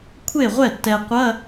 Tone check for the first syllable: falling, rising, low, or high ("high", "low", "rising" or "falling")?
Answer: falling